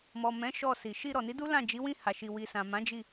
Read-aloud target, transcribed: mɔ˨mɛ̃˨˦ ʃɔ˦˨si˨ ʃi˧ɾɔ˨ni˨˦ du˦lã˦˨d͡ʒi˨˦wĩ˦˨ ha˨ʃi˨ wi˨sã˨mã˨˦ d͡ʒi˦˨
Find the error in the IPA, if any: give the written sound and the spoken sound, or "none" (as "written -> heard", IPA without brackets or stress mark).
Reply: none